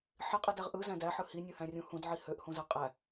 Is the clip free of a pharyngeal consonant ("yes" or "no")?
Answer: no